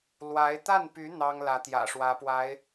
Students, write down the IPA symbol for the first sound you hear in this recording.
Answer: l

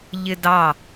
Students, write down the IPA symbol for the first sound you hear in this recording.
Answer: ʎ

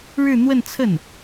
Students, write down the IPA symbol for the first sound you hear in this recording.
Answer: ɻ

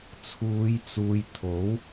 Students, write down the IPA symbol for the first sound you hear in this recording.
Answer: t͡sʰ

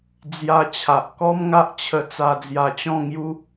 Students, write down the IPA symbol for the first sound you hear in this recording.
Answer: d͡z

